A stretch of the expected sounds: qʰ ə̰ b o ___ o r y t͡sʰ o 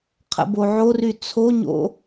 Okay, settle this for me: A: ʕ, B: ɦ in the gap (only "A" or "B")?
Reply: A